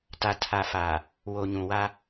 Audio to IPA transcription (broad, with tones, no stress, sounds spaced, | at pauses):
t a˨ tʰ a˨ f a˨ | w o˨ ɲ ũ˨ w a˦